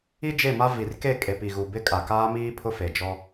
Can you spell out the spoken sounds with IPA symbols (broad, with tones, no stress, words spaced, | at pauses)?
i˦d͡ʒe˦˨ma˦ vi˨rke˦˨ kʼe˨pi˨ɣu˨ bɪ˦kʼa˨kaː˦miː˦ pʰʊ˦fe˨d͡ʒɔ˦